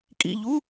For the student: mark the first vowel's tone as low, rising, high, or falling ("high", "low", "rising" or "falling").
falling